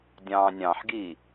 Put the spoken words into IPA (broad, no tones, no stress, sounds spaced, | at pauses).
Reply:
dʲ ɑ̃ː nʲ ɑ̃ ħ ɡ iː